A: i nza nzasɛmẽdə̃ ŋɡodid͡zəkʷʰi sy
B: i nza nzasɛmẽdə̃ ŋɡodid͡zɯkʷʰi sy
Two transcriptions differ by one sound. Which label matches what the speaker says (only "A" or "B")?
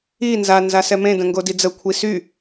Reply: A